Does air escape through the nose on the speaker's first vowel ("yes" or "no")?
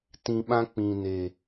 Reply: yes